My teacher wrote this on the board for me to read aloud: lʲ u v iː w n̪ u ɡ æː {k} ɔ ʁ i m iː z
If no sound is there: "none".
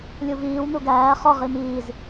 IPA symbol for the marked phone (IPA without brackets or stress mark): χ